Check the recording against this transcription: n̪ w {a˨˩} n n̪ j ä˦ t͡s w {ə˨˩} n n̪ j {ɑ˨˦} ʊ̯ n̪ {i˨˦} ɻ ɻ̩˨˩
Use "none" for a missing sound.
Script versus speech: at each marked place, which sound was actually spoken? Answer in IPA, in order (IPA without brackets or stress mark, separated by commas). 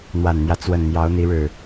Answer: a˨˩, ə˨˩, ɑ˨˦, i˨˦